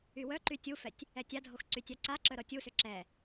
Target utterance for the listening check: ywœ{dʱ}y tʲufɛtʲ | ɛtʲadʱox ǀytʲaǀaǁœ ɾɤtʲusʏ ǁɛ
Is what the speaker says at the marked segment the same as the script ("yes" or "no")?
no